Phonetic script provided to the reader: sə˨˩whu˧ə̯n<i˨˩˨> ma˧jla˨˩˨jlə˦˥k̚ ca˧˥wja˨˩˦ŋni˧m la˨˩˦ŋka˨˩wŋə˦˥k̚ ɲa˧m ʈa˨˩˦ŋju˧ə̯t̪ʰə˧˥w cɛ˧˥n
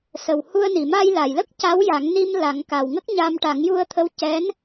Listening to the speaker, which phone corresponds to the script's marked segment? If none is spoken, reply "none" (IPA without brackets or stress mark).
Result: i˨˩˨